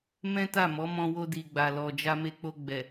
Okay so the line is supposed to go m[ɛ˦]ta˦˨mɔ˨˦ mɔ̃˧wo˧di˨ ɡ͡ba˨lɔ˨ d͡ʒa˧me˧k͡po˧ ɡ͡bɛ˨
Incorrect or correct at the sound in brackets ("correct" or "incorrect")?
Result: incorrect